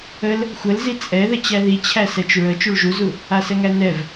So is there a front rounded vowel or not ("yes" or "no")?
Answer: no